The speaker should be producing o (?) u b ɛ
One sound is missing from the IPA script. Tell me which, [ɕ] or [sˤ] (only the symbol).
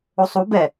sˤ